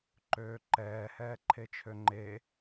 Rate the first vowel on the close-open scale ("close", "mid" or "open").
mid